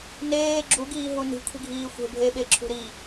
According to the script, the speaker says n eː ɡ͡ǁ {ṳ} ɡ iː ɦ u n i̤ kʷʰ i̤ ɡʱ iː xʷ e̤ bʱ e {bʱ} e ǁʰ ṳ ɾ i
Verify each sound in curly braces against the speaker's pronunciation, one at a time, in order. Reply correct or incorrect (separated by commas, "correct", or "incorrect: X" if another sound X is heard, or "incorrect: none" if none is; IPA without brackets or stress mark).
incorrect: u, incorrect: ɓ